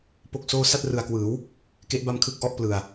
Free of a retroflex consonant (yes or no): yes